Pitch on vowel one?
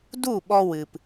falling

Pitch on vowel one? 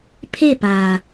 falling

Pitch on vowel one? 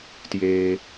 low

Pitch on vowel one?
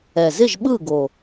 low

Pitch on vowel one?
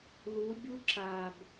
rising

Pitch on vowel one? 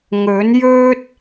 rising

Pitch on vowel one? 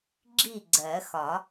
falling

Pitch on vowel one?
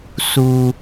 low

